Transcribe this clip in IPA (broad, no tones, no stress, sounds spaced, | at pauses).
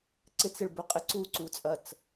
ǀ ɪ t͡s ɪ ɭ b ø qʼ ɪ ǀ u ǀ u t͡sʼ ɐ t͡s